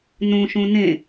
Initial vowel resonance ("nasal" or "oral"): nasal